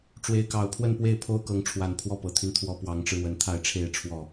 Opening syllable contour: rising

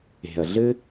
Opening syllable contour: low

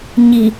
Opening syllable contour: low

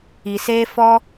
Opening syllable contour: low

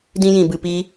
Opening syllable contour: high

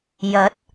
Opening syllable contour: rising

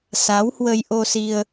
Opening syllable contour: rising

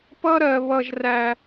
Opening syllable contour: high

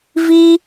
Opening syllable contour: high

